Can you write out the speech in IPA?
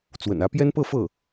t͡s w ə̰˨˩ n ä˧˥ p j ɛ˥ n p ɤ˥˧ f ɤ˥˩

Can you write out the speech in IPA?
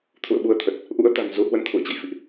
t̪ʰ ṵ˧˨ ə̯ ɓ u˧ ə̯ t̪ʰ ə˨˩ t̚ | ʔ ṵ˧˥ ə̯ t̪ a̤˨˩ n z u˨˦ h w ə˧ n t̪ʰ ṵ˧˨ ə̯ t͡ɕ ə̰˧˨ j f ḭ˧˨ ʔ

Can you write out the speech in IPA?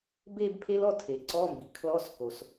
b e˥˧ b pʰ e˦˥ l ɔ˥˧ tʰ e˩ ǀ ɔ˧˥˧ m b i˩ kʰ l ɔ˧˥˧ s k o˩ s

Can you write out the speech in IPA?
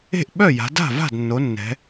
e̤˥˩ ʔ ɓ œ˥˩ j a̤˩˧ d a̤˥˩ v a̤˥˩ d nː o˩˧ nː ɛ̤˩˧

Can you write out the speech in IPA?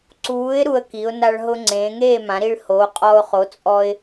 ǀ uː˨˥ ɪ̯ ɾ u˧ ə̯ k i˩˧ ʊ̯ n a˧ ɭ ɦ ʊ˧ ŋ͡ǀ ẽː˩˧ ŋ eː˥˨ m ã˩˧ ɾ i˧ ɭ h oː˨˥ qʼ ɔ˧ ʊ̯ χ o˨˥ t͡sʼ ɔ˧ ɪ̯

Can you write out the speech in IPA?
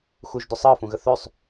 x u ʒ d ʏ sˤ əː f ũ ɣ ə θ ø sˤ

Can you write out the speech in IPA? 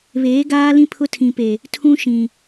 β eː˨˦ ɡ aː˦ l ĩ˦ pʰ ʊ˦ tʰ ĩ˨ p e˨ | tʰ ũ˦ ʃ ĩ˨

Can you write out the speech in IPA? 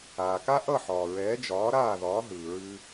aː˩ k a˥ ʔ ʌ˥˩ ħ ɒː˩ ɹ ɛː˩˥ d͡ʒ ɒː˩˥ ɾ aː˥˩ ð ɒː˩˥ ɦ ɯː˩ ɹ ʉ˧

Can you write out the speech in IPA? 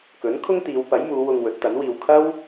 k ɵ˨˥ n kʰ ʊ˥ ŋ t̪ iː˨˧ w p ɐ˨˥ j m uː˨˧ w ʊ˧ ŋ w ɵ˨˥ t̚ t̪ ɐ˨˥ n w iː˧ w kʰ ɐ˥ w

